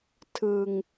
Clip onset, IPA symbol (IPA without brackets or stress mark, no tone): tʰ